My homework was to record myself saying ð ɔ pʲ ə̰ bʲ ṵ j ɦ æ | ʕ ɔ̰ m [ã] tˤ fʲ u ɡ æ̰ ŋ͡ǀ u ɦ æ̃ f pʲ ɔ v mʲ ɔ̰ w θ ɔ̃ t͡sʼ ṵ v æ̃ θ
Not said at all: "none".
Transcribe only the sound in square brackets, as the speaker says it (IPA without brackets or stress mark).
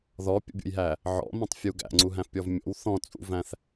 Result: æ̃